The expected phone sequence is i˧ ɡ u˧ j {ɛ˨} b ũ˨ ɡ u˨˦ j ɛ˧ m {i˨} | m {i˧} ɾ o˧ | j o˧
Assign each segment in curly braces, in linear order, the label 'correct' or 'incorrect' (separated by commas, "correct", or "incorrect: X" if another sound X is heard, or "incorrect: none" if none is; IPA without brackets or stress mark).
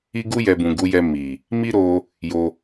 correct, correct, incorrect: i˦